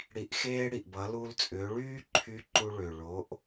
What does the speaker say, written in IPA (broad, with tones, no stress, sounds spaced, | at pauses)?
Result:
ɽ i˩˧ ʔ x eː˧ ɽ i˩ ʔ b ʌ˩˧ l u˧ l t͡sʼ ʏː˩˧ ɭ yː˥ ǃʰ y˧˥ ǃ u˧ ɭ ʏ˩ ɭ o˩˧ ʔ